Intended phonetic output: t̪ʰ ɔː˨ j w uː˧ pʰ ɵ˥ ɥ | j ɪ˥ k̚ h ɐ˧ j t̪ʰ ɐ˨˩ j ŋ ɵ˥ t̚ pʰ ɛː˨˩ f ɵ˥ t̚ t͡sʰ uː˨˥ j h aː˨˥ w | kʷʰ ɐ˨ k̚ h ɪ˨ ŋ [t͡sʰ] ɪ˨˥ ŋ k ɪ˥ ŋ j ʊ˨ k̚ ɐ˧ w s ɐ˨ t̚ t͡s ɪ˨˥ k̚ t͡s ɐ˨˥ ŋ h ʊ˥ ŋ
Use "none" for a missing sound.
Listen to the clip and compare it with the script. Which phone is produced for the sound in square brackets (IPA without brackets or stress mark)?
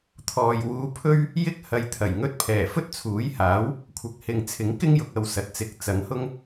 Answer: t͡sʰ